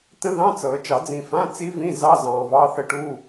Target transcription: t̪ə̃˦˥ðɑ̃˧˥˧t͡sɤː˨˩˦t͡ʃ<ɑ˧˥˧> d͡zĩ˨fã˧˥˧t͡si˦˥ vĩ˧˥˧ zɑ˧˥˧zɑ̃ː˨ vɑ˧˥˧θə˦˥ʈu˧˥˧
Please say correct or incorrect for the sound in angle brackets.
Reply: incorrect